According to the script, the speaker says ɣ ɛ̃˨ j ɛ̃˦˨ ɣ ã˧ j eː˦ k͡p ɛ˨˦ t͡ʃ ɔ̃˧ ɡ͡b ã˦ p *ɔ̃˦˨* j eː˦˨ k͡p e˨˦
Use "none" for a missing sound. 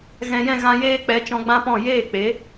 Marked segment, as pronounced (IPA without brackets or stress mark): ɔ̃˦˨